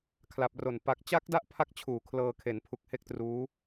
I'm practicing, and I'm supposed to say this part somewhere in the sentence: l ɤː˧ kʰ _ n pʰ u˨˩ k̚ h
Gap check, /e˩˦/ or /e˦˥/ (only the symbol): e˩˦